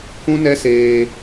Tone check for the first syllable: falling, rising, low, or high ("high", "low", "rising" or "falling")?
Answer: high